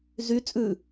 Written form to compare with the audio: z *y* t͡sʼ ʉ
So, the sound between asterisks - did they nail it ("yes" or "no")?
yes